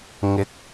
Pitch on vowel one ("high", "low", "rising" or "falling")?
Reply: rising